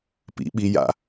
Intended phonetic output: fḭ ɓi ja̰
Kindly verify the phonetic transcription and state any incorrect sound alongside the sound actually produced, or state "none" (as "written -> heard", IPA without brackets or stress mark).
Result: f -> p